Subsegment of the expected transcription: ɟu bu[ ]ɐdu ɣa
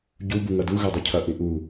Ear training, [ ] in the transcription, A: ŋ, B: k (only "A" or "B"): A